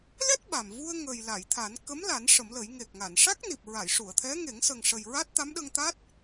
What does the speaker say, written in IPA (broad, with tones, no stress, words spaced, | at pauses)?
lɛ˦˥t̚ ɓa˨˩m vu˧ə̯ŋə˨˩j la˨˩˨jt̪ʰa˨˩˦n kə˧˥m la˨˩˦n ʂə˨˩˦mlə˨˩˦j ŋe˨˩k̚ŋa˨˩˨nʂa˦˥k̚ ni˨˩p̚ɹa˨˩˨jʂu˨˩˨ə̯t̪ʰɛ˧˥ ŋe˨˩˦ŋ sə˨˩ŋʂə˨˩j ɹa˦˥t̚t̪a˧˥mɗə˧ŋt̪a˦˥t̚